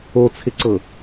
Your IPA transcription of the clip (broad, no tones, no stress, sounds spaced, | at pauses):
o t͡sʰ ɪ ǀ ɤ